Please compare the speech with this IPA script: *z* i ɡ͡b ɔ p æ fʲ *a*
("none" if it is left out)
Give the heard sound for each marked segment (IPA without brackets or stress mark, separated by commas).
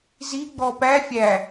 z, æ